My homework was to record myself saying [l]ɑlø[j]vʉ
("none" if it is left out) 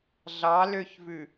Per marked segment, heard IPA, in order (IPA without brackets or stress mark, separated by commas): ɮ, ç